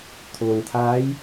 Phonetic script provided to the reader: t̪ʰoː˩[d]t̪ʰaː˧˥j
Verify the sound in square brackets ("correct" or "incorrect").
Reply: incorrect